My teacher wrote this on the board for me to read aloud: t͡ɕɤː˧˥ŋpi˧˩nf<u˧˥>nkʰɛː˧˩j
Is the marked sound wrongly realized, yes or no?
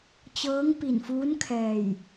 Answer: yes